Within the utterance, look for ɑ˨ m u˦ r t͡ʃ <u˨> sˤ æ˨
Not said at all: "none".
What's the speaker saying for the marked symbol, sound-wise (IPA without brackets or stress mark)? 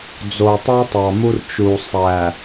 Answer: u˨